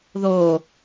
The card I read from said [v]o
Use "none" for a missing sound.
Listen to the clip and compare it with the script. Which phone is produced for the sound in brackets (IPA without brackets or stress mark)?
ð